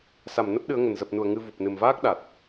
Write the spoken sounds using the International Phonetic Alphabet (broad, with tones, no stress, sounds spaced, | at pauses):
s a˧˩ m n ə˦˥ p̚ ɗ ɨ˨˦ ə̯ ŋ ə˨˩ n z ə˨˩ p̚ n u˧˩ ə̯ ŋ ɨ˧ v u˨˩ p̚ n ɨ˨˩ m v aː˦˥ k̚ ɗ a˨˩ t̚